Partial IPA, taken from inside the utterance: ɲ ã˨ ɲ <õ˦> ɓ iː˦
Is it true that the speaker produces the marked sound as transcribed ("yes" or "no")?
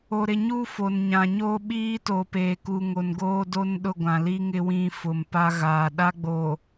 no